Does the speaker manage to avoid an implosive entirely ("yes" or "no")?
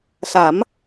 yes